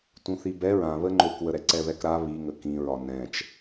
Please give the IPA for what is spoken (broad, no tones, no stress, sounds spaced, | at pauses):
t ũ θ i b ɛ ɹ ã β ə ŋ͡ǃ o k w ə ɾ ɛ ǀ ɛ β ɛ k ɾ a β i ŋ ə k ĩ ɹ ɒ n ɛ̃ t͡ʃ